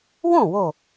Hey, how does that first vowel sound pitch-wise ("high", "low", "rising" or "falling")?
falling